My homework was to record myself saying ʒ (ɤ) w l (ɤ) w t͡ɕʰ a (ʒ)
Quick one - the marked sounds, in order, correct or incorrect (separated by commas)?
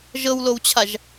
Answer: correct, incorrect, correct